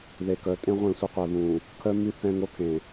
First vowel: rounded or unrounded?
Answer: unrounded